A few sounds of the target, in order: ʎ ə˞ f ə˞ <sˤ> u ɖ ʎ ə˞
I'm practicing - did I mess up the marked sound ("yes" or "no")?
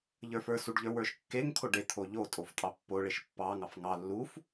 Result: yes